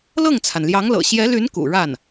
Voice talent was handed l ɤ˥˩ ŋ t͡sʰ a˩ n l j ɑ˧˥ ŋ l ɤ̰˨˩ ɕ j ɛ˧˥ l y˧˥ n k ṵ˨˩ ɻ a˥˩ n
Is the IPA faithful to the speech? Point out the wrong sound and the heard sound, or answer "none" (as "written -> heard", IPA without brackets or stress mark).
none